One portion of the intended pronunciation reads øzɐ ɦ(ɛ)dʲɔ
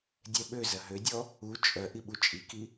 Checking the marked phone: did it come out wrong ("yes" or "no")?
yes